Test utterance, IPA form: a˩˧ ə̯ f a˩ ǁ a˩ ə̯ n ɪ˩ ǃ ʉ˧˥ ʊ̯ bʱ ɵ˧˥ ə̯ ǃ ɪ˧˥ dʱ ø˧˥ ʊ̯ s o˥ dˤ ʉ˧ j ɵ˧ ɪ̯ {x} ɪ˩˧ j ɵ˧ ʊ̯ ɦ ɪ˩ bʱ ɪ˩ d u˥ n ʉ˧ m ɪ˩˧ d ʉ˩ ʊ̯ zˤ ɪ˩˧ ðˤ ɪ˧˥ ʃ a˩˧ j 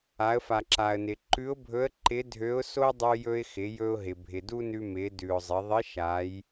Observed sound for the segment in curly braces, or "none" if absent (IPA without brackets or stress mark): x